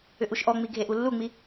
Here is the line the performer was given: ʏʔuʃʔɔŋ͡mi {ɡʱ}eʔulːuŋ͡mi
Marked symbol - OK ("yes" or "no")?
yes